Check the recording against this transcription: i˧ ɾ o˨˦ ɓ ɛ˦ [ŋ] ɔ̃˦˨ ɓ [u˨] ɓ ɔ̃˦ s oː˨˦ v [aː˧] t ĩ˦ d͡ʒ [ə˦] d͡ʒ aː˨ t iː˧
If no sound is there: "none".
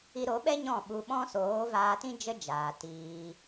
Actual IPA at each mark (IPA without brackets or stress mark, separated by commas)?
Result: ɲ, u˧, aː˧, ə˦